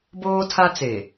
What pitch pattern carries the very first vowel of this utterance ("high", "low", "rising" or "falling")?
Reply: high